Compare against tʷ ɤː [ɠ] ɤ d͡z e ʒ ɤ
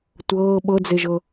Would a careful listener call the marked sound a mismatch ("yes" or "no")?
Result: yes